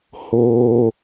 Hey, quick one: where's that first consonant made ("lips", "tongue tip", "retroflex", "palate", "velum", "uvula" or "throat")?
throat